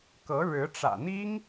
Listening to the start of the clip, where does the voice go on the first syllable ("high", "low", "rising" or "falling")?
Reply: rising